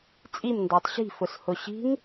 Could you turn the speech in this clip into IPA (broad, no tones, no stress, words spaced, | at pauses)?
t͡sʼimndɑtˤ ɕi̤fʊs hʊɕi̤ŋ